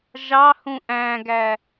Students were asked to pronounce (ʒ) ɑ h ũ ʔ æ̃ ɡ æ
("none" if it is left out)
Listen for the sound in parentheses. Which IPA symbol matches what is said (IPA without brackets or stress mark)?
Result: ʒ